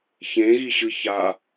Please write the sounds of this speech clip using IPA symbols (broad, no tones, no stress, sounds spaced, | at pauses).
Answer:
ç ẽ ɣ i ɕ ɯ ç a